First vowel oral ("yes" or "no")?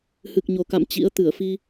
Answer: yes